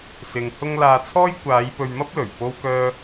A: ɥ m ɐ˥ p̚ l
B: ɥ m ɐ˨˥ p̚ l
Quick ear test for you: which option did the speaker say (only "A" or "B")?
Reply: A